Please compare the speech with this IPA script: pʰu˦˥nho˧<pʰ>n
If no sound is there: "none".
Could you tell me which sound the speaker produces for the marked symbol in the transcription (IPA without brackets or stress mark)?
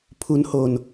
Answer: none